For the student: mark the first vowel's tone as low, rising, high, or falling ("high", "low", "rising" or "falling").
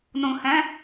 low